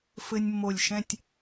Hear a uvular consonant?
no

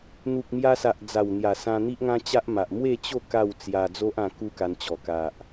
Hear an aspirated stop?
no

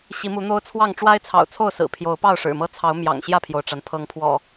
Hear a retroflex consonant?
yes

